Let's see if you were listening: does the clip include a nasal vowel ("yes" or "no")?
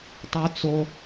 no